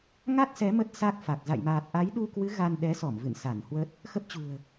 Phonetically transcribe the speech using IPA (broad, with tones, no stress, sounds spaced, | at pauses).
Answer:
ŋ a˦˥ t̚ s ɛ˨˦ m ə˦˥ t̚ s a˦˥ k̚ f a˨˩ k̚ z a̰˧˨ j m aː˨˩ t̚ ʔ a˨˦ j ɗ u˧ k w ɨ˨˦ ɣ a˧ n ɗ ɛ˨˦ s ɔ˧˩ m v ɨ̰˧˨ n s a˧˩ n h w ə˦˥ t̚ | x ə˦˥ p̚ t͡ɕ ṳ˨˩ ə̯